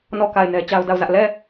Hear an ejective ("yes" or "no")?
no